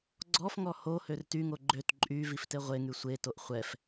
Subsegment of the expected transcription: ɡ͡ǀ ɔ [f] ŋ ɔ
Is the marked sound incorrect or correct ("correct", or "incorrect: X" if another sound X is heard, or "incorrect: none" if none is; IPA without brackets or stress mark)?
correct